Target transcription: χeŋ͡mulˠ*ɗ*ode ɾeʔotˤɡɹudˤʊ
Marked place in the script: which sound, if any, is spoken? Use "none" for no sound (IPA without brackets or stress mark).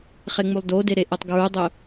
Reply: d